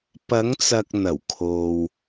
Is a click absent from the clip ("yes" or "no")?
yes